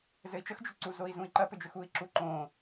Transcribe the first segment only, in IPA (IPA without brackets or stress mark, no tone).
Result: z